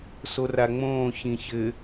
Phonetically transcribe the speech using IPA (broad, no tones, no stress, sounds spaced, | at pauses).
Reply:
s o r a ŋ͡m õː ç ĩ ç ɘ